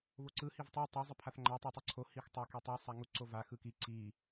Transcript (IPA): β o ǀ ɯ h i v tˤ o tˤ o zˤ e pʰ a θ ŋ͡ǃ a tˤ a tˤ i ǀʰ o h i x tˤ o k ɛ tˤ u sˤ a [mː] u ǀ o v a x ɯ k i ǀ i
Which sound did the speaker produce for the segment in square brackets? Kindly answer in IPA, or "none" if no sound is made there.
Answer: ŋ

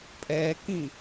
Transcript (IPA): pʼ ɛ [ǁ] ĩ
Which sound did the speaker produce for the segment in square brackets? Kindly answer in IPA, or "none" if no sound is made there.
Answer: k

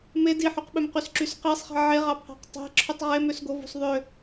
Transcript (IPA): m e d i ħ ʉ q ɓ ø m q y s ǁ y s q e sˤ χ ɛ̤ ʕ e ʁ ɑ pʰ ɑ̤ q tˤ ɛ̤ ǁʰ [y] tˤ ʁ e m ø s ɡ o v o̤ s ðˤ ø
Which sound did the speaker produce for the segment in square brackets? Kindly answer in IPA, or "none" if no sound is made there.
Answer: y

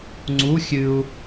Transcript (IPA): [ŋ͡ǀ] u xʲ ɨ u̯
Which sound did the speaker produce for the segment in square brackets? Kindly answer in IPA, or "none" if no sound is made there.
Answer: ŋ͡ǀ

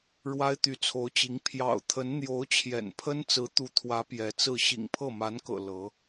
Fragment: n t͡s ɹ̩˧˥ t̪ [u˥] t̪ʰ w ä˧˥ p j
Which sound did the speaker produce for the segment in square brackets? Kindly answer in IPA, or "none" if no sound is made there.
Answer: u˧˥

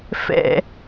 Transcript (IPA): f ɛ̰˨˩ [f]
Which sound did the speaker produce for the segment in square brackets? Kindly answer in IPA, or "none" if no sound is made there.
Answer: none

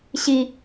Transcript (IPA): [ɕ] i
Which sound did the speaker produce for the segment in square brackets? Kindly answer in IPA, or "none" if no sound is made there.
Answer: ɕ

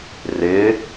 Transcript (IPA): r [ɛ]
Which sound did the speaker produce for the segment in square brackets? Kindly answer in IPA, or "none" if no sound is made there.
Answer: ɪ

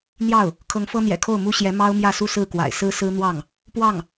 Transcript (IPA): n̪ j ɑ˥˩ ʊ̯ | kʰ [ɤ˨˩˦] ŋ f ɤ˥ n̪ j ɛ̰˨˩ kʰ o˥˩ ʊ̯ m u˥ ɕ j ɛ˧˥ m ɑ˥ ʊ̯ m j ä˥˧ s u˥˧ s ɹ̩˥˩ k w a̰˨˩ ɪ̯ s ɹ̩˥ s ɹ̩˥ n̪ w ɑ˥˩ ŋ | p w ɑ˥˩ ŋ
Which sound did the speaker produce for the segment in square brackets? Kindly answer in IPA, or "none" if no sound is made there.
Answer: ɤ˧˥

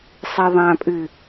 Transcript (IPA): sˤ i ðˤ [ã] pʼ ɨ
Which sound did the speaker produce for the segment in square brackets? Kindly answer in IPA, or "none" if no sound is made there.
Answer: ã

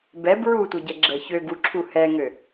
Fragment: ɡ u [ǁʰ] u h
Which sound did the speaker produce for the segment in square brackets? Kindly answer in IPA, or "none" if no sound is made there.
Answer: ǁʰ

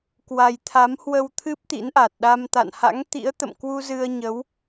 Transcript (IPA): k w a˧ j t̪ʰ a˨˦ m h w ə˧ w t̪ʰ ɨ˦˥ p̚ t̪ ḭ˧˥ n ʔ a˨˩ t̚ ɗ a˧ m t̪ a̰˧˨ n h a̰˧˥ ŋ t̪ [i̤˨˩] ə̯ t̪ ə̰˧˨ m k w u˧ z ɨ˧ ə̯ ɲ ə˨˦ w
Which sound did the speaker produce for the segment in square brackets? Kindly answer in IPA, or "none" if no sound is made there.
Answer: ḭ˧˥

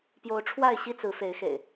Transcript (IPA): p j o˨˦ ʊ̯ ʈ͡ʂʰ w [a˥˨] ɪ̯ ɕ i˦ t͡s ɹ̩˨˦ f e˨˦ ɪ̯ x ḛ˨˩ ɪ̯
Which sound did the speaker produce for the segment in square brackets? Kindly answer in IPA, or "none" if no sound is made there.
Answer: a˥˨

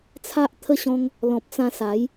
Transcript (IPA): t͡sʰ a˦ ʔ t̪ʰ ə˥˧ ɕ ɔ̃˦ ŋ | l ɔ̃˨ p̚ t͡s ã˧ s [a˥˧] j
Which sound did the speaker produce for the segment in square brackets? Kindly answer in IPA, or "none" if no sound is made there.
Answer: a˨˦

